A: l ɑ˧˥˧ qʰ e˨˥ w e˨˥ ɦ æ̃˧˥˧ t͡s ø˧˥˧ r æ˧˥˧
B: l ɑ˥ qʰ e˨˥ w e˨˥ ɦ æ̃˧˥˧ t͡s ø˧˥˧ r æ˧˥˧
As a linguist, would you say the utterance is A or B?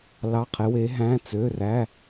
A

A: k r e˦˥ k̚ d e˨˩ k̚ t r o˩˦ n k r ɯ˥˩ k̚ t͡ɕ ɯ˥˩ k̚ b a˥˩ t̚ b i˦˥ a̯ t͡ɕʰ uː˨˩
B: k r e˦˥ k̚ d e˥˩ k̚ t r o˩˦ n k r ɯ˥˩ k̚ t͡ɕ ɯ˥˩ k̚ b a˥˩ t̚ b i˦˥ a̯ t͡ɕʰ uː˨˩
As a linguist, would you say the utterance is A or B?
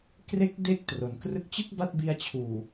B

